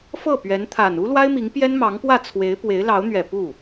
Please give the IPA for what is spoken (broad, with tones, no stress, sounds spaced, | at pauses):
f ɤ˥˩ p ɥ ɛ˧˥ n t̪ʰ a˨˩ n u˥ l w a˥ ɪ̯ m i˧˥ ŋ p j ɛ˥ n m ɑ˧˥ ŋ p w ä˥˩ t͡sʰ w e˧˥ ɪ̯ p w e˧˥ ɪ̯ l ɑ˧˥ ʊ̯ n̪ ɥ ɛ˨˩ p u˥˩